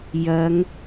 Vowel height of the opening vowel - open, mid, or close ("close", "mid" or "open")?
open